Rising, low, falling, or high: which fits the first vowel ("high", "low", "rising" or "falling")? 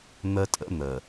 high